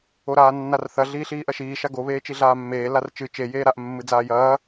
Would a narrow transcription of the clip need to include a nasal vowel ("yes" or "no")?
no